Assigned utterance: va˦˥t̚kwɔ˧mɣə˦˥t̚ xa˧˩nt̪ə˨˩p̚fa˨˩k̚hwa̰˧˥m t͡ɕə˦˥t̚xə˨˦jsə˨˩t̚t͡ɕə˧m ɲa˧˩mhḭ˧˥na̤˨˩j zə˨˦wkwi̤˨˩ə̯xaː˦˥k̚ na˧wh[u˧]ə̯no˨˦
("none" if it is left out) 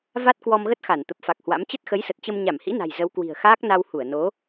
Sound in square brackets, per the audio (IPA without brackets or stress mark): u˧˩